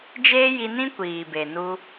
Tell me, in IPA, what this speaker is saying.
d͡ʒ eː˦ j i˧ n ĩ˦ kʷ iː˨ b e˨ n u˧

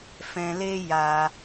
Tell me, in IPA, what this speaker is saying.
f ɛ̃˧ l e˦ j a˧

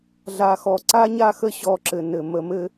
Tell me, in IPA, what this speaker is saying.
ɮ a˨ x ɔ˨ ǀ a˦ ɲ a˦ x ə˦ ɕ ɔ˦˨ ǁ ɘ˨ n ɘ˨ m ə˨ m ɘ˦

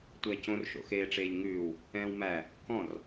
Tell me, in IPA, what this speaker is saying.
tʷ æ c õ r ʃ o̰ x eː ʈ͡ʂ eː ʎ ŋ ʉː w | ɛ̃ː w m æ | k ɔ̃ r

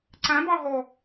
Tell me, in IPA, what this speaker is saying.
ǀ æ̃ b ɑ ɦ ɔ

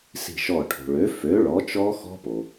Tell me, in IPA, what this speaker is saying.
s i̤˧˩ ʃ ɔ˧˩ ʈʰ o̤˩ ɭ ø˩˥ f ø˩˥ ɭ ɔ˩˥ t͡ʃ ɔ˦˥ x ɔ̤˦˥ p o˩

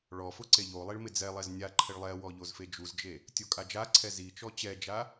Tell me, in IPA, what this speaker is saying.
ɭ ɔ f ʊ ǀ e ʎ o lˠ i ɭ m ɪ d͡z ɛ lˠ ɛ z nʲ a ǃʰ ɪ ɭ lˠ ɛ w ɔ ʎ o z f e d͡ʒ u z d͡ʒ e | tʲ o kʼ a d͡ʒ a ǀʰ ɛ z i t͡ʃ ɔ t͡ɕ ɛ d͡ʒ a

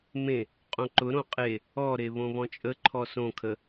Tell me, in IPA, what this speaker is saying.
m ẽ | qʼ õ ǃ ʊ ɾ õ qʼ e | ɔ ɾ e β õ β ɔ̃ t͡ʃʼ ə ǃʰ ɔ s õ kʰ ə

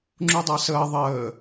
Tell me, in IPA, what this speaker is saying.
ŋ͡ǁ u dˤ a s əː ðˤ əː

